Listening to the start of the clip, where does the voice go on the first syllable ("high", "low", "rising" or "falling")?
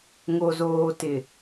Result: low